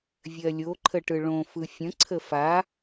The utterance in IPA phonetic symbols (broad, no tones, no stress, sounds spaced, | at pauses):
vʲ ɜ lʲ o ǃʰ ə ʈ ɯ ɭ õ f ɯ fʲ ə̃ ǀʰ ə f a